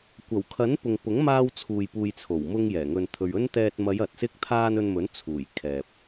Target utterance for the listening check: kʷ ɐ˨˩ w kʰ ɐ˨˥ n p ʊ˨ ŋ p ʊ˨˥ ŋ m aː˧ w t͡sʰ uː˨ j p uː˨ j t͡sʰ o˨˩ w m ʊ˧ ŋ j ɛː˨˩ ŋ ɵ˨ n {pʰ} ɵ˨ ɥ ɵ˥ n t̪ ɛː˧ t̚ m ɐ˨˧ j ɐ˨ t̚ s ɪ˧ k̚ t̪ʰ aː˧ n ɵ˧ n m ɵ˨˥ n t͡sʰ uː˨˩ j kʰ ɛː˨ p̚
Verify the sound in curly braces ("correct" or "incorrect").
incorrect